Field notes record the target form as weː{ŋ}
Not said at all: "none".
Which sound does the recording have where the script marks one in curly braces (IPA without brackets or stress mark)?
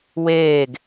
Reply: ɡ